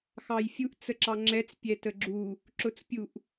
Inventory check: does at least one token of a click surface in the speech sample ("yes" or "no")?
yes